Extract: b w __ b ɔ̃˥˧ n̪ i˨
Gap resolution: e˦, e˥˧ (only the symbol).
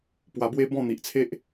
e˦